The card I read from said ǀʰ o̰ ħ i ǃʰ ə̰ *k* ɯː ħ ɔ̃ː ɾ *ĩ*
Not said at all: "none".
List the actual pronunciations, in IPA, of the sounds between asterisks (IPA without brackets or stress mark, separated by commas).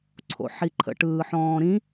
ʈ, ĩ